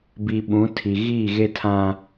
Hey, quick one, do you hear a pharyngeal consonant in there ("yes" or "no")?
no